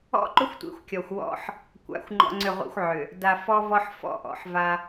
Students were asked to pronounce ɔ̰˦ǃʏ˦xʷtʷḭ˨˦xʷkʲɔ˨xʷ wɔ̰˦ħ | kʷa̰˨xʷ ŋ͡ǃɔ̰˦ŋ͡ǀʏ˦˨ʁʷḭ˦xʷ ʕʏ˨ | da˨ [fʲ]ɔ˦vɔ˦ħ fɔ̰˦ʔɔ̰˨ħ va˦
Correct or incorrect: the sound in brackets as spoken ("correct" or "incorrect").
incorrect